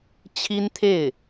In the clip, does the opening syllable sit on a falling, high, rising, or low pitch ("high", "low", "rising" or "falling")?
high